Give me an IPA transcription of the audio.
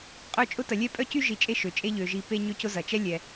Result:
qʼ œ˦ t͡ʃʼ ʊ˥ t ɐ˨ lʲ ɛ˥ pʼ œ˥ c y˥ ʒ i˨ t͡ʃʼ e˦ ʃ ø˩ t͡ʃʼ e˥ ʎ ø˩ ʒ i˨ p e˦ ɲ ø˦ c ʊ˦ z ɐ˩ t͡ʃ ɛ˥ lʲ ɛ˩

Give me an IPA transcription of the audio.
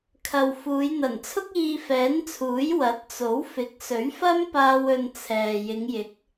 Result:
kʰ ɐ˨ w f uː˨˧ j n̪ ɐ˨˩ n t͡sʰ ʊ˥ k̚ iː˧ f ɛː˨˥ n t͡sʰ uː˨˥ j w ɐ˨˥ t̚ t͡s o˨˥ w f ɪ˨˥ k̚ s ɵ˨˥ ɥ f ɐ˥ m p aː˧ w ɵ˧ n t͡sʰ ɛː˨ j ɪ˨˧ ŋ j ɪ˨˥ k̚

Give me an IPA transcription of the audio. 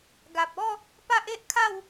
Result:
ɡ a˨ p̚ ɔ˥˧ | p a˦ ʔ e˦ ʔ kʰ a˥˧ w

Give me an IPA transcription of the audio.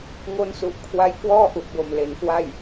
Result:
ŋ o˦˥ n s u˨˩ ʔ kʰ w a˦˥ j k w ɔː˥˩ ʔ u˨˩ ʔ b o˨˩ m l e˩˦ n k w a˥˩ j

